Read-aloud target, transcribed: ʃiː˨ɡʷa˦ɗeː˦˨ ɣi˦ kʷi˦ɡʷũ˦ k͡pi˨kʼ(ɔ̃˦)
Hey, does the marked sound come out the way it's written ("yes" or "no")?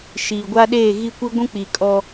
no